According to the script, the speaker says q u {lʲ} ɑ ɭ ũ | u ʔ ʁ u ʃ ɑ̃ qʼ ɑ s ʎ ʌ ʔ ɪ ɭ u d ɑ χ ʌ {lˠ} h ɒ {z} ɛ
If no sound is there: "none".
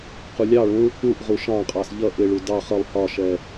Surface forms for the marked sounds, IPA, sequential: lʲ, lˠ, ʃ

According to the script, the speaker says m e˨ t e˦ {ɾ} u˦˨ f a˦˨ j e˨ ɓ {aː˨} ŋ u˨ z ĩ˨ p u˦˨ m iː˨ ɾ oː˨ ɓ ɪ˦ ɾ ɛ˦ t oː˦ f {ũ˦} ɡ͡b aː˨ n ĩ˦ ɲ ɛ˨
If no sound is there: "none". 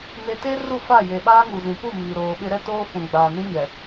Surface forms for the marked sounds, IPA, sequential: r, aː˦, ũ˨

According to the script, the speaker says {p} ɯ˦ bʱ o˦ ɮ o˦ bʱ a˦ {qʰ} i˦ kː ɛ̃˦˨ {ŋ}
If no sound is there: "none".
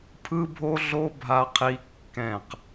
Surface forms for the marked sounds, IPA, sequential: pʰ, qʰ, q

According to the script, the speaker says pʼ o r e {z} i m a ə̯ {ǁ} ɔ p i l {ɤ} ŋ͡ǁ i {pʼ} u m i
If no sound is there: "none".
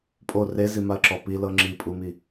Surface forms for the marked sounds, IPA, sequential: z, ǁ, ɤ, pʼ

